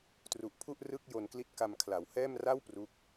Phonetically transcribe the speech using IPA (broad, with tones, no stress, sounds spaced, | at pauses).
t r u˨˩ ʔ pʰ u˥˩ ʔ r ɯ˥˩ k̚ j o˧ n k l i˦˥ t̚ k a˧ m kʰ l a˩˦ w h ɛː˥˩ m r a˥˩ w p r u˦˥ k̚